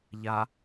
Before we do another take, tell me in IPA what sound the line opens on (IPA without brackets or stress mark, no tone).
ʎ